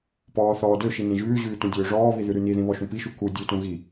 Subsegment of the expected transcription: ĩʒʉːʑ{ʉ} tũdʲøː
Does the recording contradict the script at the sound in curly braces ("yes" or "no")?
yes